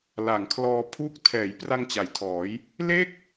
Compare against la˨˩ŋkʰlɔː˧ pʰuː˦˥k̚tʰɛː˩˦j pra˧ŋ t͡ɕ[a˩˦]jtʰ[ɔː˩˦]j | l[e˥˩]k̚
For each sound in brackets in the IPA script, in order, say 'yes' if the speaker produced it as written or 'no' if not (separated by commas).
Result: yes, yes, yes